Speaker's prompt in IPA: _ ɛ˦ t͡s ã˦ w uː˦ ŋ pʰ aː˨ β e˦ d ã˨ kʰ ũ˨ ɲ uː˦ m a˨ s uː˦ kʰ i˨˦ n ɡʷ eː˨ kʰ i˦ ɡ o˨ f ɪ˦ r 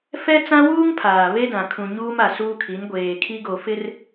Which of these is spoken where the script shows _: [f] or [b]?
f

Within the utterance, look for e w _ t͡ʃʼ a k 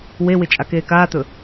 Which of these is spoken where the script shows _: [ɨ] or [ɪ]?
ɪ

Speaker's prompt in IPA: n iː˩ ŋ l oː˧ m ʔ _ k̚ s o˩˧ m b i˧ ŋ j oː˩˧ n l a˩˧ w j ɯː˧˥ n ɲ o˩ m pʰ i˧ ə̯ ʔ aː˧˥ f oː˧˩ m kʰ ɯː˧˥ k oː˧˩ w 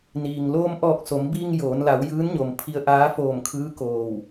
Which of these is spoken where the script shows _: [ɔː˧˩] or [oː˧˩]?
ɔː˧˩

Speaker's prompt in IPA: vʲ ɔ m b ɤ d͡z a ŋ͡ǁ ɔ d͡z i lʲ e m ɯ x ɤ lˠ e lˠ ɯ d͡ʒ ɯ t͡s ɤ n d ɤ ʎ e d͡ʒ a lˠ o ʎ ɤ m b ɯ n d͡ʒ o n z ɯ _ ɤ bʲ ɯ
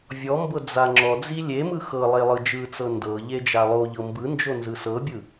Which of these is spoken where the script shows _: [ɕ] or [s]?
s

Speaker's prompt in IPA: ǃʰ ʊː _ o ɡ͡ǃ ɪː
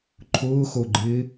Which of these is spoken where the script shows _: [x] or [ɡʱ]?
x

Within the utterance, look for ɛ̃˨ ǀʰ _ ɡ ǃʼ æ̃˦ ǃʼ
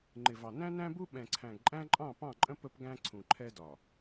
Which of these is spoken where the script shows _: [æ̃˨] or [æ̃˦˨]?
æ̃˨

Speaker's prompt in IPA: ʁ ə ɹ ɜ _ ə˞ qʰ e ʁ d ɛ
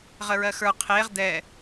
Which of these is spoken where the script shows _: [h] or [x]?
x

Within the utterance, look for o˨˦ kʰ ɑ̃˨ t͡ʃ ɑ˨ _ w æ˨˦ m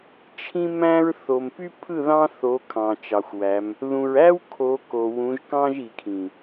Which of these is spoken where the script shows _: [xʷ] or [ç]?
xʷ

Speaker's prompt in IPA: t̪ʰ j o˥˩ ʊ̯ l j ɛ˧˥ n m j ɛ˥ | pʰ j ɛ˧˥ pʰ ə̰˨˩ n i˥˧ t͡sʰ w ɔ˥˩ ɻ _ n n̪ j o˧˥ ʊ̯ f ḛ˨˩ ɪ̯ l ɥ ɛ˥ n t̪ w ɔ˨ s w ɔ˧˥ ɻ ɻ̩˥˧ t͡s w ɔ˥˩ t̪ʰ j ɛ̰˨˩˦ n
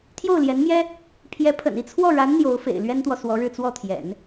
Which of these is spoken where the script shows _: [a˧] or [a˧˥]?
a˧˥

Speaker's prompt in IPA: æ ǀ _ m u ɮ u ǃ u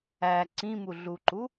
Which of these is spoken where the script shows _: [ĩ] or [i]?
ĩ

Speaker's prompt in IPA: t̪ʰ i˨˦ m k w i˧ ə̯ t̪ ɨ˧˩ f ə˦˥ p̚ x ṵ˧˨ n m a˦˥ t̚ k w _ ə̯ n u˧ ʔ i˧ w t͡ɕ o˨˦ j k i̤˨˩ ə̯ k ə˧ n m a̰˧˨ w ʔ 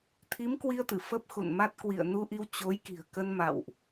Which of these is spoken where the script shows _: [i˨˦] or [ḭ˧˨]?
ḭ˧˨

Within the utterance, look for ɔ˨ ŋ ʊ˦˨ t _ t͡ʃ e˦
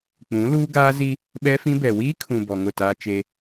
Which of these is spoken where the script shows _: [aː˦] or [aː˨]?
aː˦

